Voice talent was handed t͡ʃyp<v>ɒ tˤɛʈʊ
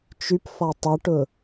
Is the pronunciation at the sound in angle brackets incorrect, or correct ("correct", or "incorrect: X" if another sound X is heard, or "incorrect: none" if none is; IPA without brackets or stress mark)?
incorrect: f